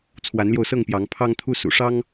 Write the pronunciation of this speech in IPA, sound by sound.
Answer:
t͡sʰwa˨˦nljo˧ʊ̯sɤ˥˨ŋpjɑ˨˦ŋ pʰɑ˦ŋt̪ʰu˦ sṵ˨˩ʂɑ˦ŋ

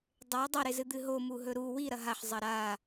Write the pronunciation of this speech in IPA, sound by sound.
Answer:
dˤew dˤɐɾezɨ d̪ɨɦomu ɦɵɾu wi ɾɐɦaħ zˤɐɾa

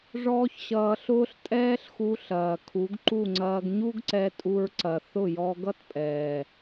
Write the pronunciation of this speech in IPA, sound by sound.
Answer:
ʐɔː˦çɕʌː˧ɬʊː˦ɬ tʼɛː˦ɬxu˧ɬɐː˨ kʰu˨˦ɡǃu˦˨ŋ͡ǀɐː˧ɡ ɲu˦ɡǀɛ˧tʼu˧ɹ ǀɐ˨ θʊ˦˨jɔ˧ ɡʌ˦tpʼɛː˨

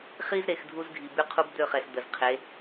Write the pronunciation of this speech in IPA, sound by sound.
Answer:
χi˦zɾe˨x dʱu˦zɡʱi˨ by˦qʰu˦bd̪ø˦˨χɛ˨s d̪ə˨z qʰe˨˦

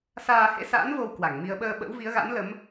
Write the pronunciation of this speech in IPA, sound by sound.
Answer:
saː˧hḛ˧˥sa̰ː˧˥n vo˧w kwa˧˩ŋ mi˧ə̯ ɓəː˧ ɓə̰˧˥wvi˨˦ə̯ɣa̰˧˥nlə˨˦m

